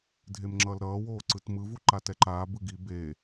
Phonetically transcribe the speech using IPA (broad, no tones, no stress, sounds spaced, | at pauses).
dʱ e m ŋ͡ǁ ʌː l ɾ ʌː w oː ǀ ɯ t m ɯ v u ǃ a t ɛ ǃ aː b ɯ ɡ i b e